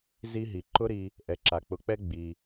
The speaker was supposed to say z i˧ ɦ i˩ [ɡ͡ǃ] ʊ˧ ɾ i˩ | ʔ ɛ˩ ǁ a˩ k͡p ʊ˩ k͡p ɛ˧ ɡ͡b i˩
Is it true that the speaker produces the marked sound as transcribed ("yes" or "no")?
no